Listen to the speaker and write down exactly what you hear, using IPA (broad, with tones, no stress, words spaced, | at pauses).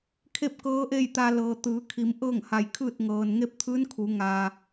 kʰe˥˨p̚ kɤː˧˥ʔe˥˨jt̪a˧ lɤː˩ t̪ɯː˩˧kʰi˩˧m ʔɤː˥˨ŋha˧˩jkʰɯː˥˨t̚ ŋɤː˩n ŋe˥˨p̚t̪ʰɯː˧˥nkʰu˩˧ ŋaː˩